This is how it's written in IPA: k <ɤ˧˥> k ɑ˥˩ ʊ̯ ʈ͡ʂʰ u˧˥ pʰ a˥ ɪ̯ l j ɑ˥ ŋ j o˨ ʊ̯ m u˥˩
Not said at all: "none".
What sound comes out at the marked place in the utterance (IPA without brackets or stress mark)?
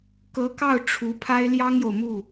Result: ɤ˧˥